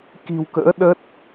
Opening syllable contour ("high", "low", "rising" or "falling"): low